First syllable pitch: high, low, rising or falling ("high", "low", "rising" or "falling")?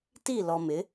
falling